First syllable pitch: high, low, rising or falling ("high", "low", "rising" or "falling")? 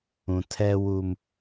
low